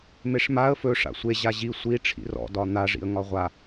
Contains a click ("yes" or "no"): no